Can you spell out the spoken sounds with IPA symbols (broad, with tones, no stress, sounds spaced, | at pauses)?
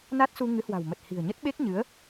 n a˦˥ t̚ s u˧ ŋ ɨ˨˦ h w a̤˨˩ w m ə˨˩ t̚ h i̤˨˩ ə̯ ɲ ə˦˥ t̚ ɓ e˦˥ k̚ ɲ ɨ˨˦ ə̯